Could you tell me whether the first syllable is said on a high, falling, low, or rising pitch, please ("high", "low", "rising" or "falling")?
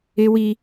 high